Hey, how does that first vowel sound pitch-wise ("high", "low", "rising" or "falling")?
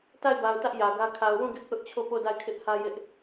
falling